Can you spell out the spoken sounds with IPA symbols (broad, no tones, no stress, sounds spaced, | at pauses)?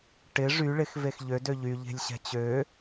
ʈ ɪ ʐ y ɭ ɪ x v e x ʎ ø d ø ʎ y ʎ e̤ lʲ ɕ ɛ̤ t͡ɕ ø